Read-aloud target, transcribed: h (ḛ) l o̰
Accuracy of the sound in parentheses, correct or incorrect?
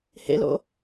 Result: correct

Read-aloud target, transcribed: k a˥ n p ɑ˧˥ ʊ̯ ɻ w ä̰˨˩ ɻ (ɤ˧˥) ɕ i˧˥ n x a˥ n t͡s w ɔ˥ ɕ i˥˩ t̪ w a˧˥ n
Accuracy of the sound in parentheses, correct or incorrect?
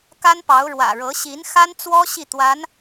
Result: correct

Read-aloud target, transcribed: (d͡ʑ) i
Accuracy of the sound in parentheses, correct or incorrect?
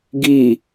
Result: incorrect: ɡ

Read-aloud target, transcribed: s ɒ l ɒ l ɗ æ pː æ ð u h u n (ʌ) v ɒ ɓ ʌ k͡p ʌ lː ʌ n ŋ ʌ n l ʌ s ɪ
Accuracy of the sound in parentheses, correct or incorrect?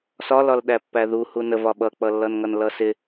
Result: incorrect: ə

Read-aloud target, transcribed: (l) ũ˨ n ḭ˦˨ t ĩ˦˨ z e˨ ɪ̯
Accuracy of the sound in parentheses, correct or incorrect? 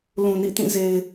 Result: correct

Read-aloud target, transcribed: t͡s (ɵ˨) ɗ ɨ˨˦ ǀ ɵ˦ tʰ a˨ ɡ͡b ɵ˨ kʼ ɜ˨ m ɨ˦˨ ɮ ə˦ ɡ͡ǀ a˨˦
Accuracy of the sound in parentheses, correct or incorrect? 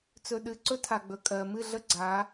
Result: correct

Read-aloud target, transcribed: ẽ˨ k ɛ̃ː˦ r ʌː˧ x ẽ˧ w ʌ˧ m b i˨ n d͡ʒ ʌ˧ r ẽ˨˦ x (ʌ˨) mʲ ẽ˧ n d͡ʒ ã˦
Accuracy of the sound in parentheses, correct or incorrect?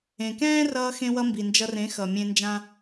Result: correct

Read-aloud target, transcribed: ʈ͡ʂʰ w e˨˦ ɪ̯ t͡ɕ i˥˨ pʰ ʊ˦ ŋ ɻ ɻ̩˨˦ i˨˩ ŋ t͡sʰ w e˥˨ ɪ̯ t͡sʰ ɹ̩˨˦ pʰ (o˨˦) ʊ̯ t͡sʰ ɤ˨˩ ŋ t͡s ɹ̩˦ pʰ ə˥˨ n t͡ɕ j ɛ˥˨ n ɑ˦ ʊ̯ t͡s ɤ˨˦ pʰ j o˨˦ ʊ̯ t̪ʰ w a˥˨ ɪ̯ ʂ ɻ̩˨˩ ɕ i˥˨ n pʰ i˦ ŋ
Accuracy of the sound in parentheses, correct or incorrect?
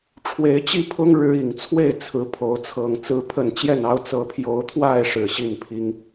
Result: correct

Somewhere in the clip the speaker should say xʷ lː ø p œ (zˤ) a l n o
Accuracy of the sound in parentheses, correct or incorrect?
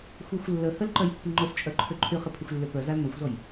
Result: incorrect: z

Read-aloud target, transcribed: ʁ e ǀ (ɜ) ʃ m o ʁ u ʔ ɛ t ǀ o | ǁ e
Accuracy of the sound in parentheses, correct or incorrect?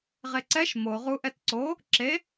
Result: incorrect: ɛ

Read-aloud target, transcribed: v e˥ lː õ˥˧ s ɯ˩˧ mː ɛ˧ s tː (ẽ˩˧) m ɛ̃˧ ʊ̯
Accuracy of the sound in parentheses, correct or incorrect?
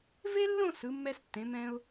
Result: correct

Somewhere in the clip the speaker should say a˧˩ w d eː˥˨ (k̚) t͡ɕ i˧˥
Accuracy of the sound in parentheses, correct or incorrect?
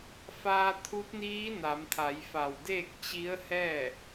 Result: correct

